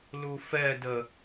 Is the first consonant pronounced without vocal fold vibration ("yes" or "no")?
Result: no